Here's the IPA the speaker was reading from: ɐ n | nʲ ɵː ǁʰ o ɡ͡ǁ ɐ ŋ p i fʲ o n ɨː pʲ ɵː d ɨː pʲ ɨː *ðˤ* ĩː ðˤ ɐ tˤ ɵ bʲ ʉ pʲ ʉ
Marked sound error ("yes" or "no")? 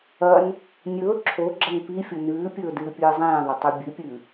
yes